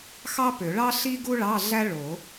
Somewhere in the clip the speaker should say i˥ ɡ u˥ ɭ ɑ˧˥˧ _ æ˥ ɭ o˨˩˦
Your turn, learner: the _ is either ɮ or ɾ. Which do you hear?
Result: ɮ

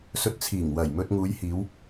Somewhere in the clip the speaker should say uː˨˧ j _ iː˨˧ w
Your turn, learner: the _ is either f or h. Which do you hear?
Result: h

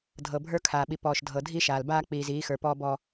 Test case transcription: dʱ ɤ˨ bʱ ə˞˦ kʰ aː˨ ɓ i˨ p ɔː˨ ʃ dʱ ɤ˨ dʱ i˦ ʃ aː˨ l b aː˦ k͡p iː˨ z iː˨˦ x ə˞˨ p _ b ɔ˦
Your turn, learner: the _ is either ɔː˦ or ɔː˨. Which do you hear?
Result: ɔː˦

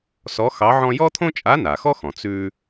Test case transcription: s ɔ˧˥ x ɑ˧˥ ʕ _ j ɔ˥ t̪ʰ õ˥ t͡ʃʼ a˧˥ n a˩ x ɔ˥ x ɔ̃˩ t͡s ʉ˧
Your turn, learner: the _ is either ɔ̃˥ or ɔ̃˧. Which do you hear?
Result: ɔ̃˥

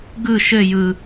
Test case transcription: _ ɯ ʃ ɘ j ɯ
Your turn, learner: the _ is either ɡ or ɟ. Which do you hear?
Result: ɡ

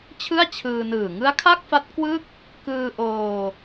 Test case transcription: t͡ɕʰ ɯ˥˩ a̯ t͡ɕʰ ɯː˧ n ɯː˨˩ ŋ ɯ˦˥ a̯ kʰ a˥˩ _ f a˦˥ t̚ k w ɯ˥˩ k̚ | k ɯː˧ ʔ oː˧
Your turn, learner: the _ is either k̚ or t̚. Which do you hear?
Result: k̚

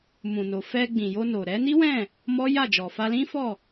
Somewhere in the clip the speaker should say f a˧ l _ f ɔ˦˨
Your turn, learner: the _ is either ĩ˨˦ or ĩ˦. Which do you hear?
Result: ĩ˦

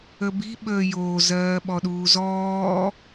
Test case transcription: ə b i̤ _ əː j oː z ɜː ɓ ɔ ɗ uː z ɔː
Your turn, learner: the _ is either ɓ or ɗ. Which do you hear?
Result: ɓ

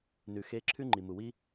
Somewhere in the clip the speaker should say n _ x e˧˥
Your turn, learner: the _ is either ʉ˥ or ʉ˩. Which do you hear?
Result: ʉ˩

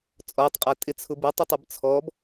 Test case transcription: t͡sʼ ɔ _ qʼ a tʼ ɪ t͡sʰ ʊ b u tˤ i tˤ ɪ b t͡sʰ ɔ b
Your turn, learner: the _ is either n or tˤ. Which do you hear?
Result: tˤ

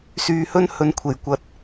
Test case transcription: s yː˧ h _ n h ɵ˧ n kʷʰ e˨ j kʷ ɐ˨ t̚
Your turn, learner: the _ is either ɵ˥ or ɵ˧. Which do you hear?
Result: ɵ˥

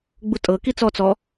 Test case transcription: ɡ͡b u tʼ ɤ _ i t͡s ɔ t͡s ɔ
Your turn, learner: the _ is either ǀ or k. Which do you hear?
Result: k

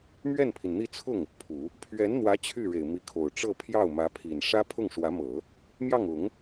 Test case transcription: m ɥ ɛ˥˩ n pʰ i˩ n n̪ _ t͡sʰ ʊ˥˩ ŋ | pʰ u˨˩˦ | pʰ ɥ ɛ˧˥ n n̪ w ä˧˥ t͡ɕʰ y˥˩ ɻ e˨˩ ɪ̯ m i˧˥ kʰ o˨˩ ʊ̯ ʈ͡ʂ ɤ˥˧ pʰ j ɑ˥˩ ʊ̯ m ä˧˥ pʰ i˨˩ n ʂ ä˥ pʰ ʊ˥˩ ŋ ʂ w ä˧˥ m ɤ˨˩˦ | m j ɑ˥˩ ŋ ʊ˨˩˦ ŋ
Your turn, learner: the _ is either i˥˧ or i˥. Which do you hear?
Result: i˥˧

